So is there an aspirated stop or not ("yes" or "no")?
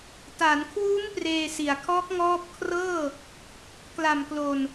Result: yes